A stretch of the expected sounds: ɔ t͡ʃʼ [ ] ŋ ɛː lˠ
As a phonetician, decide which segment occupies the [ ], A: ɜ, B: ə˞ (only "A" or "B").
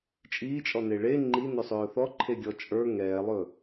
B